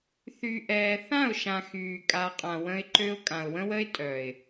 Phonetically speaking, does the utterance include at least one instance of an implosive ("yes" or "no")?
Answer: no